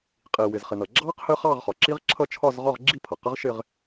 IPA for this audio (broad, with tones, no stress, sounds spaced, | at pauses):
qʼ i˩ w ɪ˩ z χ ɪ˩ n ʌ˩ ɡ͡ǁ ɑ˦˥ q h ə˦˥ χ ɑ˥˧ ʁ χ ɒ˩ ǁ i˦˥ ʁ ǁʰ ʌ˥˧ t͡ʃʰ ɒ˥˧ z ʁ ɒ˥˧ ʁ ɡ͡ǁ i˥˧ pʰ ʌ˩ q ə˦˥ ʁ ʃ ɪ˥˧ ʁ